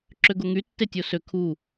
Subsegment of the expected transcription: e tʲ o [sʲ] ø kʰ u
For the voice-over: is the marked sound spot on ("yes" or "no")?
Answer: no